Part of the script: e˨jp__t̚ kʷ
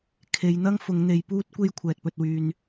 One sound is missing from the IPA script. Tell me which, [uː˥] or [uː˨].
uː˥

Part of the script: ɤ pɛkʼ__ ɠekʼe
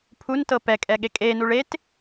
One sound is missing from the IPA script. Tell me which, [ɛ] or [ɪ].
ɛ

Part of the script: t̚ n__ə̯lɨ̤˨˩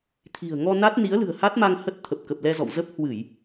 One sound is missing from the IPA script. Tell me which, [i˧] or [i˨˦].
i˨˦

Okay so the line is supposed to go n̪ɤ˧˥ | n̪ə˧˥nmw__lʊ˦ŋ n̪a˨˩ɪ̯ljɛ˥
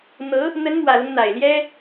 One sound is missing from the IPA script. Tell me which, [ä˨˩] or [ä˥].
ä˨˩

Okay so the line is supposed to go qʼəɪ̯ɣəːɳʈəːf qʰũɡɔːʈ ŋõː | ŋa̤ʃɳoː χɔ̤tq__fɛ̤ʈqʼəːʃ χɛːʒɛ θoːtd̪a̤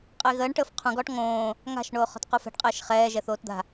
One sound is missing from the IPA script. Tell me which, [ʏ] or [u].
u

